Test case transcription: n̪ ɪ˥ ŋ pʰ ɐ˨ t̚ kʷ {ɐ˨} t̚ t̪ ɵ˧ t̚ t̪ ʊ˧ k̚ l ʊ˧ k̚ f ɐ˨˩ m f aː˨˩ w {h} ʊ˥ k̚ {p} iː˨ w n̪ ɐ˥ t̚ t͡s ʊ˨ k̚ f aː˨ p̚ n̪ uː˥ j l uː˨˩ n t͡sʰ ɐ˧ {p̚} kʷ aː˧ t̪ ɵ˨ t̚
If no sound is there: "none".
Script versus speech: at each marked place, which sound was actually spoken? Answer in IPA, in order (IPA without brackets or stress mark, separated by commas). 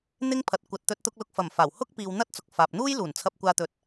ɐ˨, h, p, p̚